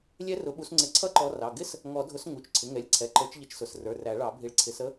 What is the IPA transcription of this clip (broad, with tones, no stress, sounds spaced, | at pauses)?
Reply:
lʲ ɛ˦˥ r ʊ˨˦ ɓ u˨˦ s ŋ͡ǀ ɪ˨˩˦ ǀʰ ʌ˦˥ ǃ ɔ˨˦ r ɑ˩˧˩ ɡ ɪ˦˥ s | ŋ ɔ˨˩˦ dʱ ʊ˨˦ s ŋ u˩˧˩ t͡ʃ ǀʰ ɪ˩˧˩ ŋ ɛ˨˦ lʲ ǀʰ ɛ˩˧˩ ǃ ə˞˨˦ t͡ʃ ʎ ə˨˦ t͡ʃ s ʊ˩˧˩ s r ə˞˩˧˩ r æ˨˩˦ ɭ ɑ˨˩˦ bʱ i˨˦ ɭ ǀʰ ɪ˨˦ s ə˦˥